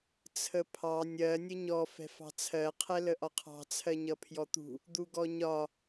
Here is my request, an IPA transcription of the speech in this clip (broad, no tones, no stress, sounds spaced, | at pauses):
t͡sʰ ə pʰ ɑ nʲ ɜ nʲ ə ɲ ɔ f ɛ̤ f ɑ̤ t͡sʰ ɜ qʰ ɛ l ə ʔ ɒ qʰ ɑ̤ t͡sʰ ɜ ɲ ʌ pʰ j ɔ t̪ ṳ | d̪ u ɡ ɔ ɲ ɒ